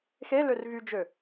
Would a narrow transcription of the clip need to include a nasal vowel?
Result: no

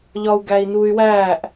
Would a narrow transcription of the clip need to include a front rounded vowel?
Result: yes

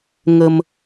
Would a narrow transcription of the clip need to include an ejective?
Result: no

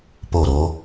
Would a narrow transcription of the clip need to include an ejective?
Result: no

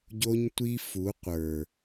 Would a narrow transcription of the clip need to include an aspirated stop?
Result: no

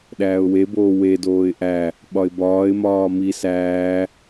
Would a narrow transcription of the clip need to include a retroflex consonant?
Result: no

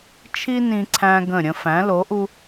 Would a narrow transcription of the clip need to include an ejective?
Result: no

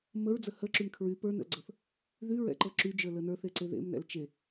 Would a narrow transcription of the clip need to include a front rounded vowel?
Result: yes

